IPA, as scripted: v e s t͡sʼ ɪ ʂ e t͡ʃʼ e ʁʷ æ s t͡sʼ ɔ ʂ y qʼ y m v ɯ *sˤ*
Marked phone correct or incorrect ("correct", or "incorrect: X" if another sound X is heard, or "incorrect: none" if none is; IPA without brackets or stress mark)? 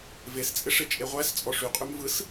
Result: incorrect: s